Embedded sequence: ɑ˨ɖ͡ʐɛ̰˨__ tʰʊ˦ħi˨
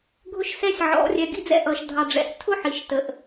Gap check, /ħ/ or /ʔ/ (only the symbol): ʔ